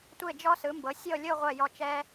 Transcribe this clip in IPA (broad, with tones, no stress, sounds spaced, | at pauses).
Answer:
tʷ e˥˧ d͡ʒ ɔ˥ s ɯ˩˧ m b ɤ˩˧ sʲ ɤ˥˧ lʲ o˥˧ ʁʷ ɛ˧˩ j ɔ˧˩ t͡ʃ ɛ˧